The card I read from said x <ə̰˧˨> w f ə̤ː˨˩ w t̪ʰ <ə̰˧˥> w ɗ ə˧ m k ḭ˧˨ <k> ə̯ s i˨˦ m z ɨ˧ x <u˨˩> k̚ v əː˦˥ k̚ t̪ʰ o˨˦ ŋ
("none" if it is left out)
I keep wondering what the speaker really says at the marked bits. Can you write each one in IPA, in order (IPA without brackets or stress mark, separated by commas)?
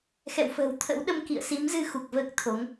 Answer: ɛ̰˧˨, ə̰˧˥, none, u˨˩